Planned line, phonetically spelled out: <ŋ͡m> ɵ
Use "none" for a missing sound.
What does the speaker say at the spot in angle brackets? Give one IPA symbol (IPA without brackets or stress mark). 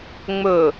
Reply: ŋ͡m